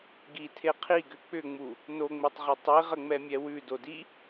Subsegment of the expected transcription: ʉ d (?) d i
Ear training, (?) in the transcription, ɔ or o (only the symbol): o